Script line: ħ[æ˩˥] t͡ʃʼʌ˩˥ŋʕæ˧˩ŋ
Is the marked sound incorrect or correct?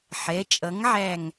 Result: incorrect